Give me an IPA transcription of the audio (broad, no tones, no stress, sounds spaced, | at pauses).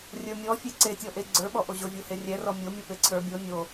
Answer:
rʲ ə˞ mʲ ɔ fʲ e ǀ e tʲ ɔ ʔ e ɡ͡ǀ ə˞ ɓ ɔ ʔ o ʑ o vʲ o h e rʲ ɛ r ɔ mʲ o mʲ ɔ p e ǀʰ ə˞ bʲ o nʲ o